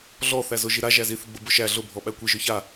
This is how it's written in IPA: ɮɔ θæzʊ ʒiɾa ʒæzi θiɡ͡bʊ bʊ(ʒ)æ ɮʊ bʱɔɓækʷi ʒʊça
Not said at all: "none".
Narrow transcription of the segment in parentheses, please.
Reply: ʃ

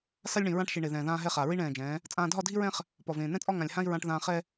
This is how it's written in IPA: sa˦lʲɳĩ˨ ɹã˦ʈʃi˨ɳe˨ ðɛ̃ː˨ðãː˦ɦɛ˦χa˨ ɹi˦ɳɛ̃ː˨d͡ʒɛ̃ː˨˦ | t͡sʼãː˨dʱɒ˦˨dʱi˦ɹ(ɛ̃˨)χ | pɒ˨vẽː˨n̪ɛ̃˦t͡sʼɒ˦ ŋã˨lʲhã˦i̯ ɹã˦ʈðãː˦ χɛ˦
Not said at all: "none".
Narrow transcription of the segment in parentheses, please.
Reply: ɛ̃˦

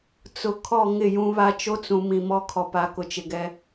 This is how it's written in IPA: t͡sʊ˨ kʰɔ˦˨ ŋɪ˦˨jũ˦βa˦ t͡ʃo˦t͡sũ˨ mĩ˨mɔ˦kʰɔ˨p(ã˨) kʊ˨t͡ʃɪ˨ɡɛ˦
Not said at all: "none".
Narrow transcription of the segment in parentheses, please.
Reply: a˨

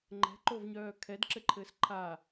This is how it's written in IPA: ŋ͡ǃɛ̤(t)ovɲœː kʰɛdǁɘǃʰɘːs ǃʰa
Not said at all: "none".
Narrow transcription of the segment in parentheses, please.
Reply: ǃ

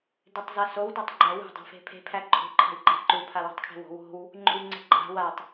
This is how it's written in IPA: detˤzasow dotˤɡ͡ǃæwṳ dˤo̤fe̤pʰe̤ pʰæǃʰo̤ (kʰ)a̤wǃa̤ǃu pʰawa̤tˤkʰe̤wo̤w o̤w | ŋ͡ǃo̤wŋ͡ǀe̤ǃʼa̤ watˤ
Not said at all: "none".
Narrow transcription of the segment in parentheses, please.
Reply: ǃʰ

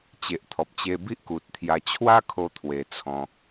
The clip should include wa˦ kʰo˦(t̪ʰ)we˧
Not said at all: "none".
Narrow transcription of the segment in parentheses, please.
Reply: t̪ʰ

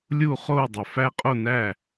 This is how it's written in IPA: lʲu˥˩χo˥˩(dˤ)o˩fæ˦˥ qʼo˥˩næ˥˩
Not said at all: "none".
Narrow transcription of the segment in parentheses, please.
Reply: dˤ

